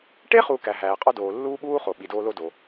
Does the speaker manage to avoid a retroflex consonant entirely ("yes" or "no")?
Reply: no